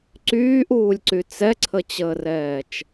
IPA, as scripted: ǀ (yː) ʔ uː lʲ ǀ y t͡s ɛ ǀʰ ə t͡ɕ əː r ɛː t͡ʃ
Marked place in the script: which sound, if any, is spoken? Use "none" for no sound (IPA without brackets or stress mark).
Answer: yː